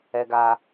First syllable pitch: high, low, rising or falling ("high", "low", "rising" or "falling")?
high